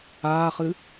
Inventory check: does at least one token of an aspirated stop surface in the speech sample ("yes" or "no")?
no